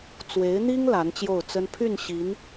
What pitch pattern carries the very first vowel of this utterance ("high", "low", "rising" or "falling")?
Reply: rising